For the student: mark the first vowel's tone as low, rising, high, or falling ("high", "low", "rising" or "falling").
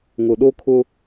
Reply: low